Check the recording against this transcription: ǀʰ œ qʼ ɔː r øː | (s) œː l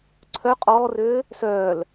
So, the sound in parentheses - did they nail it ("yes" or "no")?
yes